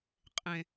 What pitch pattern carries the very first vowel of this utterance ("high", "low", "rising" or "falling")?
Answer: low